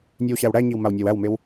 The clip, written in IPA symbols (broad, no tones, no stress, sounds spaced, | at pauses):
nʲ e w ɕ æ w ɽ æ ɲ i w m a w nʲ a w æ w m e w